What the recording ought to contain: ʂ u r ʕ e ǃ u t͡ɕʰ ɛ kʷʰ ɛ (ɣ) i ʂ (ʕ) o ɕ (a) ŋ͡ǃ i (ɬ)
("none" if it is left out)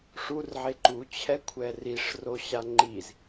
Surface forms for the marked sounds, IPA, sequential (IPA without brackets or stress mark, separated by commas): r, r, a, z